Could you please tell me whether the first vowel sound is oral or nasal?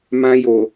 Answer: nasal